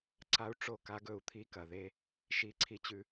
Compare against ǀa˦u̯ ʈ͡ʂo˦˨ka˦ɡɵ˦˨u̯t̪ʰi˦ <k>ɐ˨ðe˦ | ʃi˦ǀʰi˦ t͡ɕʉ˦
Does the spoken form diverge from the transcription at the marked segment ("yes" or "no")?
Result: no